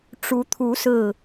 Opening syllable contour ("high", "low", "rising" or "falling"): rising